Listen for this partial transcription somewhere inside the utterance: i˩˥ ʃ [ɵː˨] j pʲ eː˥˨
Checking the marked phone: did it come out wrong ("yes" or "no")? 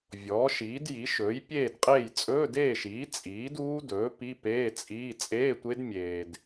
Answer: yes